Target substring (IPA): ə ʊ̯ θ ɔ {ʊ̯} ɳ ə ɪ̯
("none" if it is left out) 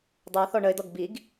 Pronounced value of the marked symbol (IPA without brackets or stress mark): none